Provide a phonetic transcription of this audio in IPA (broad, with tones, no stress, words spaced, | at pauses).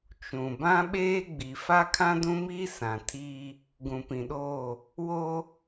t͡ʃũ˨ bã˦ɓeː˦ɡ͡bi˨ fa˦kʰã˦dũ˦miː˦ sã˨tʰiː˦ | ɡũ˨pĩ˨ɗoː˦˨ | wo˦